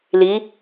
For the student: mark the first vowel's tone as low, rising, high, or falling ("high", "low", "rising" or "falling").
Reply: rising